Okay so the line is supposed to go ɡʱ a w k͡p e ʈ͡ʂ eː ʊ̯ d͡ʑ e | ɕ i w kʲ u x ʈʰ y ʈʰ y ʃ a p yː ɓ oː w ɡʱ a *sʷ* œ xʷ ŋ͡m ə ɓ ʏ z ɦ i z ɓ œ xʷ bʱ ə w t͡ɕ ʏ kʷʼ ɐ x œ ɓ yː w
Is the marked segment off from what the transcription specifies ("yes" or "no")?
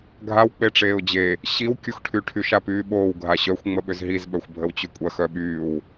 yes